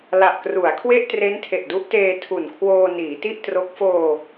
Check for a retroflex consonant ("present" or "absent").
absent